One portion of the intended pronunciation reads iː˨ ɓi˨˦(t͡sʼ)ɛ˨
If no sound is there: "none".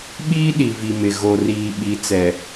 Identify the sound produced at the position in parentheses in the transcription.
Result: t͡s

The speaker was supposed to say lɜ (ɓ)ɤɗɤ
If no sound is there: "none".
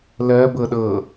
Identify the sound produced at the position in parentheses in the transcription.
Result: b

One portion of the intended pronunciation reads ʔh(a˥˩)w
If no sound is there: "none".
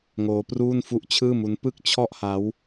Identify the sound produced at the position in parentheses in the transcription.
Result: a˦˥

